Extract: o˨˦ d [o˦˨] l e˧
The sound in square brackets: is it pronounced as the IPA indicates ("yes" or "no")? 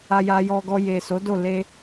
yes